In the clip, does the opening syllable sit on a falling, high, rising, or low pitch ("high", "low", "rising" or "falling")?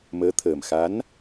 rising